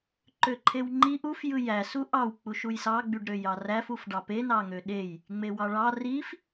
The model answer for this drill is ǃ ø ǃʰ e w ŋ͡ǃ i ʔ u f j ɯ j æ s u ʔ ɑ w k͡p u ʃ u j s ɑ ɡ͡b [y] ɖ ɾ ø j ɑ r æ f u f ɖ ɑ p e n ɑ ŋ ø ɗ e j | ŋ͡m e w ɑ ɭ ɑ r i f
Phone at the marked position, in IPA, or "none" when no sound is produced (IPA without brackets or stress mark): y